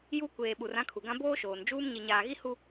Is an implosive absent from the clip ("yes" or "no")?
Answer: no